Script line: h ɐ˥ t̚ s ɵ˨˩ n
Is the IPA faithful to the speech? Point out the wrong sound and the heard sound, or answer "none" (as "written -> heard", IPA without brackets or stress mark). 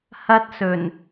none